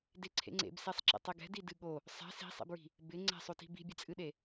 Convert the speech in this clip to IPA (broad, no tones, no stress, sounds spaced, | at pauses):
d e ǀʰ ḛ ŋ͡ǀ ḛ b s e sˤ ǁ ḛ tˤ e ɡ ɛ̤ d i d ɨ ɠ o | sˤ ɛ̤ s i̤ sˤ ḛ b ɹ i̤ | b ɪ ŋ͡ǀ ɛ̤ sˤ o t i̤ b i̤ bʲ e t͡sʼ ɨ ɗ e